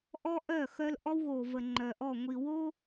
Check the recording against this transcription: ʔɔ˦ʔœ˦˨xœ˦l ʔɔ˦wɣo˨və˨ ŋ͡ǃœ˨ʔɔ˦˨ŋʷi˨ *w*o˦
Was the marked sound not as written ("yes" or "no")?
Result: no